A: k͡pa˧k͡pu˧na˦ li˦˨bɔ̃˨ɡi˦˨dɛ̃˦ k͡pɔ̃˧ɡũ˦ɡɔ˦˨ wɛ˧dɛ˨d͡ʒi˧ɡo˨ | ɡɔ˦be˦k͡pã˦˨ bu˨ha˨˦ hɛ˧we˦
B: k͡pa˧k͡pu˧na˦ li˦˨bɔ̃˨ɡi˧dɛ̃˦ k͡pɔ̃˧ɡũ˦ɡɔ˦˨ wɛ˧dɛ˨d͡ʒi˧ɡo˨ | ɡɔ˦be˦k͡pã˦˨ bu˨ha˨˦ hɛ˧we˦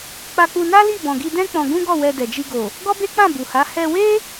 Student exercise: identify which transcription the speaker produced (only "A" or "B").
B